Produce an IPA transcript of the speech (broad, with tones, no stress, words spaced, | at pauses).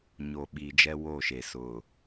ɲoː˨ɓiː˨d͡ʒɛ˦ wo˦˨ʃe˨ sʊ˨